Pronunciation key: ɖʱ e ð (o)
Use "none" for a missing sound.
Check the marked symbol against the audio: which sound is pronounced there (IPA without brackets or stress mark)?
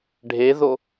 o